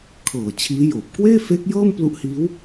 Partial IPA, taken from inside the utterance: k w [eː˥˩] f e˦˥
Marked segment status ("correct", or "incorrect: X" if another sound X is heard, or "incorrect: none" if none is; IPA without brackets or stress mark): correct